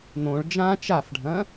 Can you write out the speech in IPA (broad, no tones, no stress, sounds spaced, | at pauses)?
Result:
n̪ õ ɭ d͡ʒ ã t͡ʃ a f ɖʱ ɐ̃